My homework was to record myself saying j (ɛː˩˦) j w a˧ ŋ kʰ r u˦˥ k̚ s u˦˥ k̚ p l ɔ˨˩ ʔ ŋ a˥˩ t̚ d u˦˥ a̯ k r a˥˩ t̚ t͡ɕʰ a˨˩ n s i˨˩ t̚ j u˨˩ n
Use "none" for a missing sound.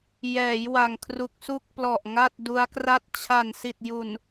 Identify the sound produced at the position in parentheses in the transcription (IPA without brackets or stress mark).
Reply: ɛː˩˦